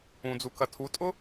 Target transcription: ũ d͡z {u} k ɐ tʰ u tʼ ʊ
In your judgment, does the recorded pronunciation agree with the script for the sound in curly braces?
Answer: yes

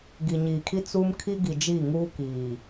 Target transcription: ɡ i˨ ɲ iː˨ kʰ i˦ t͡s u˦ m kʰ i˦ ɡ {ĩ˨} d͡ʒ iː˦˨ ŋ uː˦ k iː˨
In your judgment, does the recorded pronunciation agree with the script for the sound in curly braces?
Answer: no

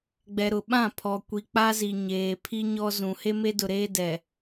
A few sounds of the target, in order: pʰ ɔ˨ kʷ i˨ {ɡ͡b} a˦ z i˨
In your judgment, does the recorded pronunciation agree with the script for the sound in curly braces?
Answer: no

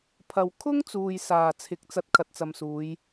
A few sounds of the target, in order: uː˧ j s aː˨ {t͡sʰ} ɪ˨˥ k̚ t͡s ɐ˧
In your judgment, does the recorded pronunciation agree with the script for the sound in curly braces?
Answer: yes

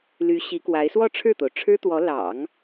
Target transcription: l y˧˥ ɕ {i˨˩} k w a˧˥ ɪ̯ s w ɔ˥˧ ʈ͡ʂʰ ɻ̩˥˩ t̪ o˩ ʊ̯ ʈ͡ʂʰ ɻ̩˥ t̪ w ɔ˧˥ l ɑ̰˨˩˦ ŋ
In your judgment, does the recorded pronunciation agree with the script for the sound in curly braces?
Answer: no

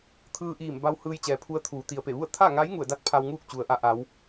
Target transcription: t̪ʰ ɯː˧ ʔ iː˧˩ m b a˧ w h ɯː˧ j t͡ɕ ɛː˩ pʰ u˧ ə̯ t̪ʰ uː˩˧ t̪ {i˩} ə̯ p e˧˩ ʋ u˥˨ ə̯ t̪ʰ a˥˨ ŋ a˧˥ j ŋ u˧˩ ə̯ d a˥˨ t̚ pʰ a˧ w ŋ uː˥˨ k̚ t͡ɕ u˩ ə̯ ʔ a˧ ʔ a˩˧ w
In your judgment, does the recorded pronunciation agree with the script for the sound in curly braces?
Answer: yes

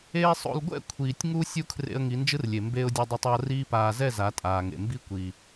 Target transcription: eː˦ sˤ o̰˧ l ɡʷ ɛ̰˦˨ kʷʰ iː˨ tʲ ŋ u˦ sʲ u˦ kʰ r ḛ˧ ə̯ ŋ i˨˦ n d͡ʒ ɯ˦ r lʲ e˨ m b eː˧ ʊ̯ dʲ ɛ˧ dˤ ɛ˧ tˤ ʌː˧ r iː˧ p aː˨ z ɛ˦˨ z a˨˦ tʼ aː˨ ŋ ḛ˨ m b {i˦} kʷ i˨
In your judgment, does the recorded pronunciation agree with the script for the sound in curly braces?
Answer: yes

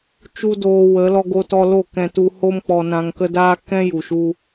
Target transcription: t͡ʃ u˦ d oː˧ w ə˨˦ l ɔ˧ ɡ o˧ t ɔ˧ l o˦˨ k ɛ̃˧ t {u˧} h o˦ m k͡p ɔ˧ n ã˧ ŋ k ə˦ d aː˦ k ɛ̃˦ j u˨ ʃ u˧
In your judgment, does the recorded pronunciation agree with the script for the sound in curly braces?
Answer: yes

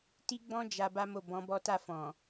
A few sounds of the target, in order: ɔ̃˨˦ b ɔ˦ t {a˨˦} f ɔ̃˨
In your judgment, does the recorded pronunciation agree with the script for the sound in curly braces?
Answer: no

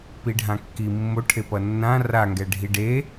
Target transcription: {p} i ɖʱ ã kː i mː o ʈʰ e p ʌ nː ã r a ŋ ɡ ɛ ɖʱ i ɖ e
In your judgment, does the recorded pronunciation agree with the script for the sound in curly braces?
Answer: yes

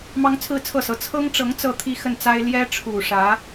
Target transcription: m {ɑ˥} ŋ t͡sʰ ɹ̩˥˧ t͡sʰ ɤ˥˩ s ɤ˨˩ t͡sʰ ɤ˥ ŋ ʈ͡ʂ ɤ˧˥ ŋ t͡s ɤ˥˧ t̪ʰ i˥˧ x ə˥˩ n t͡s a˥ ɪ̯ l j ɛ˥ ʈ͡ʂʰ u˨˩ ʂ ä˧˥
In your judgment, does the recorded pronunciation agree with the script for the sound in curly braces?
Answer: yes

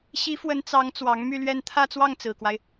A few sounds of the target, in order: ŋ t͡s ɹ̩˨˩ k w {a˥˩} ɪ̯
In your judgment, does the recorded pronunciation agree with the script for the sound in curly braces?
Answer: no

